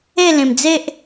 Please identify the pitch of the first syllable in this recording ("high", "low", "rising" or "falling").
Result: falling